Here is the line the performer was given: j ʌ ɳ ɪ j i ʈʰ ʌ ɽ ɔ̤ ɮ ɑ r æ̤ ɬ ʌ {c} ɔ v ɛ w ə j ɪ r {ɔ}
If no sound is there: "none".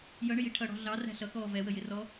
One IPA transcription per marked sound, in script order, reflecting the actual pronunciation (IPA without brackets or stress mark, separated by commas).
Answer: k, ɔ